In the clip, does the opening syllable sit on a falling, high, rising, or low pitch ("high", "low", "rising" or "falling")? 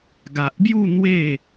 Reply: low